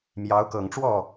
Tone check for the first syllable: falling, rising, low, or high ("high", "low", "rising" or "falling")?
rising